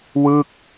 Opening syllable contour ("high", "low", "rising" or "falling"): falling